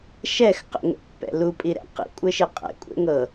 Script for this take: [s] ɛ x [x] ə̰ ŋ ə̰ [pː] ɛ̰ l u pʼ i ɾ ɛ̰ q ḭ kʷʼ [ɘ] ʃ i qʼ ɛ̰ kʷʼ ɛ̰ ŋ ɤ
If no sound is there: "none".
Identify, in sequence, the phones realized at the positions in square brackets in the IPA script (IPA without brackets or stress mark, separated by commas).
ʃ, q, pː, ɘ